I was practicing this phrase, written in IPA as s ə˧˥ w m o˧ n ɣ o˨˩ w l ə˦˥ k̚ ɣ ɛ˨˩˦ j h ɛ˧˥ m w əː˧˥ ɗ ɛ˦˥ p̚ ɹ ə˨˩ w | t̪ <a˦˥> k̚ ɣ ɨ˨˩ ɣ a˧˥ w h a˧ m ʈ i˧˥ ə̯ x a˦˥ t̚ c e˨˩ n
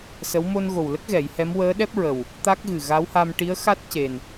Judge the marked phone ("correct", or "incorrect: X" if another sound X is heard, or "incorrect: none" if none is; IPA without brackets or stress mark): correct